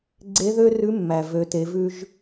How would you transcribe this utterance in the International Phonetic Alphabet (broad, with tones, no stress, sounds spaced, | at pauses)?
ɡ͡ǀ e˧˥ ð ø˥ r ʉ˧˥ mː æ˩ v ø˩˧ t e˩˧ v ʉ˧ ʒ